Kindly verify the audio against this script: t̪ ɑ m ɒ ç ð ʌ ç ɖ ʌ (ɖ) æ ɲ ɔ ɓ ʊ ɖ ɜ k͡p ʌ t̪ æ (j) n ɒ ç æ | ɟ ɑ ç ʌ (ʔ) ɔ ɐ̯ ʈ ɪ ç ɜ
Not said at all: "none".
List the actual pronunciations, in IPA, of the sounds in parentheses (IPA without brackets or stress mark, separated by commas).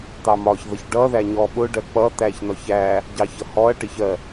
ð, ç, h